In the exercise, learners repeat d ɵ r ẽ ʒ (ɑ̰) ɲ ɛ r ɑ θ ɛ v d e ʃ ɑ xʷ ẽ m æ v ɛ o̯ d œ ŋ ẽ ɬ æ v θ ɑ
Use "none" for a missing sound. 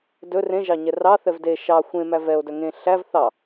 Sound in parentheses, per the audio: ɑ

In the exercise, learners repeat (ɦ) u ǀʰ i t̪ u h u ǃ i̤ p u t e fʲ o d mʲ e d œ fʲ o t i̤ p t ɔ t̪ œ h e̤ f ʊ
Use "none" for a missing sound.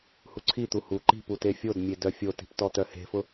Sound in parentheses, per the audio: h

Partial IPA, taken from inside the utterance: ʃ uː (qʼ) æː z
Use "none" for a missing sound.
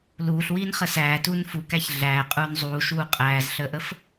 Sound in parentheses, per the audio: qʼ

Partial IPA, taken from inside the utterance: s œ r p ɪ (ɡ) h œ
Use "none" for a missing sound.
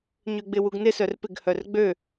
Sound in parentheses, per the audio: ɡ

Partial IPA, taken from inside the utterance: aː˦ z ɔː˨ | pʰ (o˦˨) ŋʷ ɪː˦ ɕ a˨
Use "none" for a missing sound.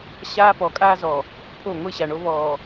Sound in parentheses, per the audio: o˦˨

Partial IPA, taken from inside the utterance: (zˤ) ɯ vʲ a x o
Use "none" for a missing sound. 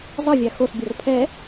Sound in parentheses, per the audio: zˤ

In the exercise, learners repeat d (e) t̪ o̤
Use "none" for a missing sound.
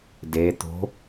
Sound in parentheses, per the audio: e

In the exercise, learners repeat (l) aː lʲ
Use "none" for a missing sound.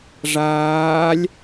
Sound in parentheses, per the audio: ʐ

